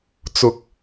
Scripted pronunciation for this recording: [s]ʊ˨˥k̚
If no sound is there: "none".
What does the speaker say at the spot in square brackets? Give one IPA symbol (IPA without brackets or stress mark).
t͡s